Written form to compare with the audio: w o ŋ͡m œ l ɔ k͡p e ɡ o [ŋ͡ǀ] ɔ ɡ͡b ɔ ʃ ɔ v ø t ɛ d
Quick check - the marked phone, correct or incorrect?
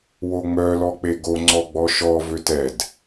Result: correct